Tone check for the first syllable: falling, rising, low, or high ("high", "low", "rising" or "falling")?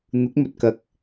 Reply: rising